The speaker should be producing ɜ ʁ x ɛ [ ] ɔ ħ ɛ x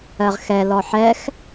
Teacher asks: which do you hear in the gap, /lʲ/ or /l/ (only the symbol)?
l